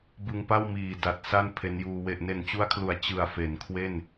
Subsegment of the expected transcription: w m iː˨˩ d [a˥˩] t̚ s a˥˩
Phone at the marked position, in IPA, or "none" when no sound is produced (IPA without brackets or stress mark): a˨˩